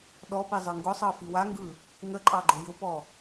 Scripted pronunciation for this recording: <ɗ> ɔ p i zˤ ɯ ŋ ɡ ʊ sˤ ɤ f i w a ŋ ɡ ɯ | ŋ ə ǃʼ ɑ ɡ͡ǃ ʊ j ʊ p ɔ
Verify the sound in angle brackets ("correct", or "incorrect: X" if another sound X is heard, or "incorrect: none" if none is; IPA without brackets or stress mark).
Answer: correct